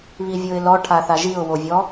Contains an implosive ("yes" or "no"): no